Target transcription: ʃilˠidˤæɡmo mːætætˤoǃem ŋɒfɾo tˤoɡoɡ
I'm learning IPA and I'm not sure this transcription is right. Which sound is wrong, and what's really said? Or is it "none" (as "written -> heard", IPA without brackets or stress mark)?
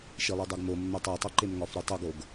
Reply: t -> tˤ